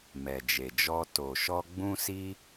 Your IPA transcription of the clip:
mɛ˨d͡ʒe˨d͡ʒɔ˧ to˨ʃɔ˧ ɡ͡bũ˧si˧

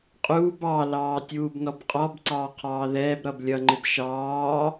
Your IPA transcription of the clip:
qʼuːb ɑlɑː tʲuːbnɔbqʼɔbǀɑː qʰɑːðɛːbɾʌb lʲʌŋ͡ǃɪb ʃɑː

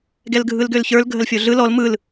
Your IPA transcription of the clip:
ɡɛlɡʱɯlɡølçə˞l ɡʱəlfʲoɮɯ lɔl mɯl

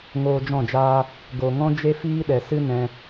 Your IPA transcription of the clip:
ŋoː˧d͡ʒɔ̃˦˨d͡ʒaː˦ | ɡo˨ŋɔ̃˦ d͡ʒe˦fiː˦ɗɛ˨ sɨ˦nɛ̃˧

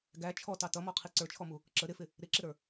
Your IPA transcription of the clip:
ɡæ t͡ʃʰɔtɑ tʌmɔqʰi ǀə˞t͡ʃʰɔmu | ǁə ɾɪfɪ | ɾɪǁɪɾə˞

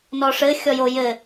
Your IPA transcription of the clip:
nɔʂɘ xʲɔjo jɘ

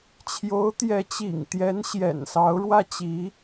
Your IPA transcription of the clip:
t͡ɕʰjo˧˥ʊ̯ t̪jɛ˧˥t͡ɕḭ˨˩ŋt̪jɛ˧˥n ɕjɛ̰˨˩nsɑ˧˥ʊ̯ɻwä˥ t͡ɕi˧˥

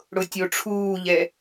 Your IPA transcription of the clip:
ɽʊtʲoʈ͡ʂʰuːʎɛ

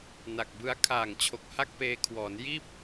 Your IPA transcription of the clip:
na˨˩k̚bɯ˦˥a̯ kʰaː˨˩ŋt͡ɕʰo˨˩k̚ha˥˩k̚ peː˧kʰwɔː˩˦n jiː˥˩p̚

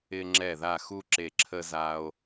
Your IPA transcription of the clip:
ɪ˧ ŋ͡ǁɛ˧˩ða˧˩xu˧ ǁe˧˩ǁʰə˧za˧o̯

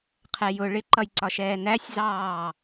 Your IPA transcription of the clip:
qʰɛjʊ ɭɪǃʌjǀɒʃɛː næsʲzɑː

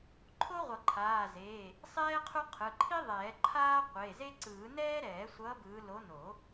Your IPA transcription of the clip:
ǃʰo˥ʁʷʌ˨˩˦ǃʰaː˩˧˩zeː˩˧˩ | sˤɛː˥qʰu˥qʰɯ˩˧˩ ǃʰi˥ðˤɛː˨˩˦ ǃʰaː˥qʷe˩˧˩ze˥ ǀɯː˨˩˦nɛː˥ ɾɛː˨˩˦sʷʌː˨˦ bɯː˨˦ lo˨˦no˨˩˦

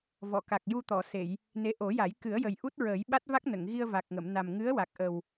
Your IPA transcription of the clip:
vɔ˨˩˨ka˨˩k̚ ju˧t̪ɔ˨˩˨se˨˩˨j | ne˧˥ ʔo˨˩˦ja˨˩˦j kɨ˨˩˦ə̯jə˨˩j ʔu˦˥t̚ɹəː˨˩˦jɓa˦˥t̚va˦˥k̚ nə˨˩˨ŋɣi˧ə̯va˨˩k̚ŋə˨˩˨m na˨˩mŋɨ˧˥ə̯wa˨˩k̚ʔə˨˩w

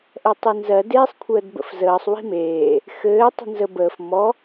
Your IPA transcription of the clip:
ʔɛtˤinzɜ deːsˤkʷʰəːdbə̰fzəːsˤ wi̤meː | xɘː tˤi̤nzə bəːf mɔ

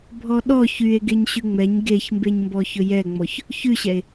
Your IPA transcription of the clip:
bʱɔɗɔ çye̯ ɡeɲɕʉŋ͡mɛɲ ɡeçmbeɲmbɔ çɵjɛŋ͡mɔç | çʉɕɛe̯

